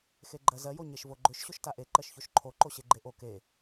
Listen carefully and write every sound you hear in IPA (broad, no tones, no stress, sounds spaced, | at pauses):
x e ɡ͡ǃ ɜ z ɜ j o ɲ e ʃ v o ɡ͡ǃ ʏ ʃ ɕ o ʃ t a ʔ e ǃ ɜ ʃ ç o ʃ ǃʰ o ǃ o ɕ e ɡ͡ǃ e ʔ o k e